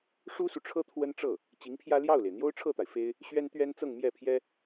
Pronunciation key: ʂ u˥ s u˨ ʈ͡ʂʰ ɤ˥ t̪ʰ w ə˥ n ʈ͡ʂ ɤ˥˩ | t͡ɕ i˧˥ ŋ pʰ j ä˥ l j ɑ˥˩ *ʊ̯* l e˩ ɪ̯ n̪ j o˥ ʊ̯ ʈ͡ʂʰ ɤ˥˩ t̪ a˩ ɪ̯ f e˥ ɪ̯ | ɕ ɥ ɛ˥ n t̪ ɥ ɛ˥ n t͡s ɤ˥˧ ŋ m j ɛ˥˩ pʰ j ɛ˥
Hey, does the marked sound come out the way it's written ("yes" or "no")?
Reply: yes